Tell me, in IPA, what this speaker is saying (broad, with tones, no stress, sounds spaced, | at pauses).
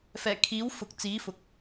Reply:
f ɛː˨˩ kʰ iː˨˥ w f ʊ˨ k̚ t͡s iː˨˥ f ʊ˨ k̚